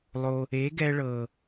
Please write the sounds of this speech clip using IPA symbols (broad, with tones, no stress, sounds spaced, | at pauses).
lˠ o˧ | e˨˦ ɡ ɛ˧ ɭ ɤ˨